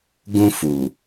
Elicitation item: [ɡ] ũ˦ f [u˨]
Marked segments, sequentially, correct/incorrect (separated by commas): correct, correct